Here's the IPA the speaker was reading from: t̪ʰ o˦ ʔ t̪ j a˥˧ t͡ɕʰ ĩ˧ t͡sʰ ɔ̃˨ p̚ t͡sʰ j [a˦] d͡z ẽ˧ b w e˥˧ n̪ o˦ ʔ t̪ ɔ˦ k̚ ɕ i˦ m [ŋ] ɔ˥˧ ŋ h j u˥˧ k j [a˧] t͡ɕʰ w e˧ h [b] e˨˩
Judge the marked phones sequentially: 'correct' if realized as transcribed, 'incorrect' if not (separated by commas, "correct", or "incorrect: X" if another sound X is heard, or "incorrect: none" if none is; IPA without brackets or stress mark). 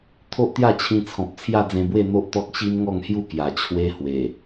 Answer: incorrect: a˥˧, correct, incorrect: a˨˩, incorrect: w